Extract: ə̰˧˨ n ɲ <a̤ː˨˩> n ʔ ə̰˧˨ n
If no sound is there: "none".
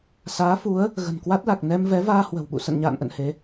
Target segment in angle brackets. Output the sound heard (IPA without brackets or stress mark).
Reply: a̰ː˧˨